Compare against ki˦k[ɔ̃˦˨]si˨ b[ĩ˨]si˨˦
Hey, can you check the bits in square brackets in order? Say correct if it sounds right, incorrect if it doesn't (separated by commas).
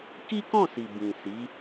correct, correct